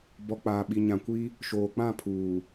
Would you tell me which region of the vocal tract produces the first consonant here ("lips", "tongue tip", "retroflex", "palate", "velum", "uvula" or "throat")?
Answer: lips